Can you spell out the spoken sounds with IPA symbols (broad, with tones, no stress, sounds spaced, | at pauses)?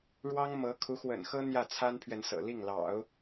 ɻ w ɑ˥ ŋ m ɤ˧˥ kʰ u˧˥ x w ə̰˨˩ n x ɤ˥ n̪ j ä˥˩ t͡sʰ a˥ n pʰ ɥ ɛ˨ n s ɤ̰˨˩ l i˥˩ ŋ l ɑ̰˨˩˦ ʊ̯